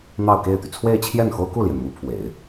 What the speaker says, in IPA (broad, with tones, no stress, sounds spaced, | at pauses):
n̪ ɑ˥˧ ʊ̯ k e˥˩ ɪ̯ t̪ y˩ t͡sʰ w e˥˧ ɪ̯ t͡ɕʰ j ɛ˥˩ n x o˥ ʊ̯ k u˥˩ l j ɛ˩ n m u˧˥ pʰ w ḛ˨˩˦ ɪ̯